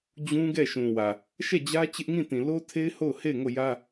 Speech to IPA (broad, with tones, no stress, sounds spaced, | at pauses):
d͡ʑ ũ˦ ɡ ɛ˦˨ ʃ ũ˨ w ä˨ | ʃ ɛ˦˨ d͡ʑ ä˦ t͡ɕ ɪ˦ ʔ ŋ ĩ˦˨ t ĩ˨ l o˦ tʰ e˦ ɪ̯ h o˦˨ ʊ̯ h e˦˨ ɪ̯ ŋ o˦˨ j ä˦